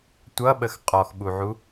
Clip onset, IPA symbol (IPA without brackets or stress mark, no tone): tʷ